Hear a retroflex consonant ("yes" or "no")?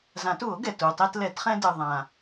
no